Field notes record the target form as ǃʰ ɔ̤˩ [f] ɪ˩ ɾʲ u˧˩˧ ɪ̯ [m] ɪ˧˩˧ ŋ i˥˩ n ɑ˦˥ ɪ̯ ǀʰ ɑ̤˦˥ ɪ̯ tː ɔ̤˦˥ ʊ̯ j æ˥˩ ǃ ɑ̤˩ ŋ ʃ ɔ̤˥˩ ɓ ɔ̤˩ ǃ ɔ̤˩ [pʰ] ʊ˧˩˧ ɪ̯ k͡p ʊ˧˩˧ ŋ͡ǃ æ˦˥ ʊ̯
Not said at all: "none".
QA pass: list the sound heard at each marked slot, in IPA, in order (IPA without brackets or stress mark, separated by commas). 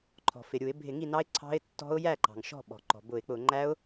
f, bʱ, b